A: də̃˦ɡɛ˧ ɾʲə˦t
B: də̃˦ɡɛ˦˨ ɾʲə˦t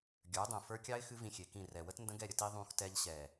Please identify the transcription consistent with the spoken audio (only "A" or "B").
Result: B